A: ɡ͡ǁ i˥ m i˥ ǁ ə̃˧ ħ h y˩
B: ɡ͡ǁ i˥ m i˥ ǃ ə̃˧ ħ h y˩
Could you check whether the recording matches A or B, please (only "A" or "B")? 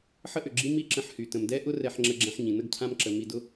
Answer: A